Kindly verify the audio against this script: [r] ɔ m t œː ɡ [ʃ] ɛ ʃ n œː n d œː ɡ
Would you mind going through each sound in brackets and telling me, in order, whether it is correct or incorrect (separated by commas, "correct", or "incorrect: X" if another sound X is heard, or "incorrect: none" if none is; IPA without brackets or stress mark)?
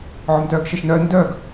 incorrect: ʕ, correct